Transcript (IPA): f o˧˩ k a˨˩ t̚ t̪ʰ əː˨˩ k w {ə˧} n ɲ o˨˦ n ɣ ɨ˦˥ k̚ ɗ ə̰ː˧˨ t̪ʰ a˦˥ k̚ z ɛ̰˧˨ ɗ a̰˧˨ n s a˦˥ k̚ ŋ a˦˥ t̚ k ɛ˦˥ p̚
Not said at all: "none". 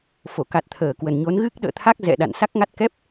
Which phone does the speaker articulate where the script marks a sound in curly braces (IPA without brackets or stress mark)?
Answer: ə˨˩